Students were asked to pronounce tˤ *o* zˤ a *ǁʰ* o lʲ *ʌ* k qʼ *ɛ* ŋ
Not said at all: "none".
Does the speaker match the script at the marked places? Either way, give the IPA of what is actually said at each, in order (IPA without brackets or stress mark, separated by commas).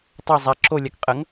o, ǁʰ, a, ə